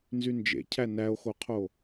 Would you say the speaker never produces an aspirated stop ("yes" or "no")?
no